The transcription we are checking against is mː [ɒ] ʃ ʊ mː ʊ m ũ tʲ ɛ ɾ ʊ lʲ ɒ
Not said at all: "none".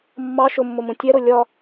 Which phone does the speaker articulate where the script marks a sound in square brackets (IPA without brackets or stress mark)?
ɑ